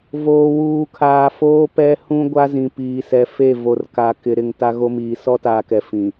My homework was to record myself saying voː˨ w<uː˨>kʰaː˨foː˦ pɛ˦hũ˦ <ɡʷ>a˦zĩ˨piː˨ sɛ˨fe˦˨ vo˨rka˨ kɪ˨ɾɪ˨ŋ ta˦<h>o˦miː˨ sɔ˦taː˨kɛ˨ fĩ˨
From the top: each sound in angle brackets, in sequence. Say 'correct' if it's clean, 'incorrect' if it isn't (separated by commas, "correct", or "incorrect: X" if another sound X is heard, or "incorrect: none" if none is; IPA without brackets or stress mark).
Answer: correct, correct, incorrect: ɣ